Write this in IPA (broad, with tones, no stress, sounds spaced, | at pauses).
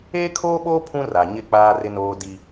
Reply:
eː˦ kʰ oː˦ ɓ oː˦ pʰ ũ˦ r a˨ ɲ ɪ˦˨ k͡p aː˦ r ɪ˦ n oː˦ d i˦